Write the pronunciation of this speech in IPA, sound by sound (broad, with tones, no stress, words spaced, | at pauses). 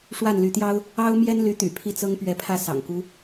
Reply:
ʂwa˥˩nly˧˥t̪jɑ˥ʊ̯ | ɑ˥ʊ̯mjɛ˥nly˧˥t̪y̰˨˩ pʰi˥˩t͡sɤ˥ŋpɥɛ˧˥pʰä˥˩ sɑ̰˨˩ŋku˧˥